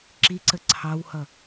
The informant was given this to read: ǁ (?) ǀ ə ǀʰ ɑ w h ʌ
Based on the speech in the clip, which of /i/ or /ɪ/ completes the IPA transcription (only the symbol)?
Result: i